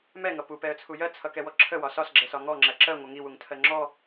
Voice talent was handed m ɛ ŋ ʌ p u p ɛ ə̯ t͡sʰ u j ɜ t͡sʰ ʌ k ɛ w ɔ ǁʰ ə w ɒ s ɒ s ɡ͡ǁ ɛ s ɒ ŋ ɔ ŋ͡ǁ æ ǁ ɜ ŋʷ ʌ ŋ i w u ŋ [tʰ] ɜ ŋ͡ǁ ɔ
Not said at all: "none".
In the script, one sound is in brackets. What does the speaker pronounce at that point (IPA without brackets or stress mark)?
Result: tʰ